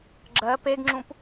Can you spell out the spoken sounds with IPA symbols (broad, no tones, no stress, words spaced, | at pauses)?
ɡ͡ǁɜ peɡŋ͡ǁũp